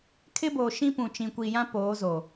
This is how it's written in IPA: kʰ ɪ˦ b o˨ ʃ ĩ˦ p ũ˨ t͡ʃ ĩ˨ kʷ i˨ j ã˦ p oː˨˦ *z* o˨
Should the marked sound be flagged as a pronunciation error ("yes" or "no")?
no